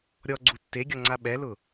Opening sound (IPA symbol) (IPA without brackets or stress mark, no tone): ɾʲ